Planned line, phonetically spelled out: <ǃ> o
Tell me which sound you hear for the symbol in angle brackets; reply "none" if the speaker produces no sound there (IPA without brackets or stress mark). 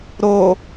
ɾ